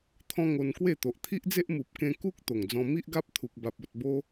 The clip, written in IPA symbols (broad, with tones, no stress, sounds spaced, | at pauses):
t̪ʰ ɔ̃˦ ŋ o˧ n k w e˥˧ t̪ o˨ ʔ t̪ʰ i˦ ʔ d͡z e˦ ʔ m u˨ p̚ k ẽ˧ k u˦ k̚ t̪ o˨˩ ŋ d͡z ɔ̃˧ m i˦ ʔ ɡ a˦ p̚ t̪ʰ u˨ k̚ b a˨ p̚ o˨ t̚ b o˧